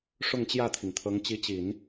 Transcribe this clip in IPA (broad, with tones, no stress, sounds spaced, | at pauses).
ʂ ʊ˥˧ ŋ t͡ɕ j ä˥˩ t̪ʰ i˩ ŋ t̪ʰ ɤ˧˥ ŋ t͡ɕ i˧˥ t͡ɕ i˨˩˦ n